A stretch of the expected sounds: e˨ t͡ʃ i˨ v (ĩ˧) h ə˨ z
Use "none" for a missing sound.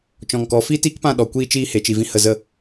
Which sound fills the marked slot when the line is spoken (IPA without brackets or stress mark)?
ĩ˧